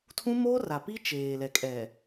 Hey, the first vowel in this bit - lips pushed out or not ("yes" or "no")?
yes